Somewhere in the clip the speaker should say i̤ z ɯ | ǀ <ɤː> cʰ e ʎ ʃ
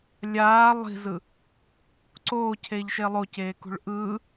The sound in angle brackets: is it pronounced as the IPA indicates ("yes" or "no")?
no